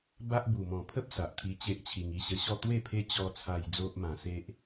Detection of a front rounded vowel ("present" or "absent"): absent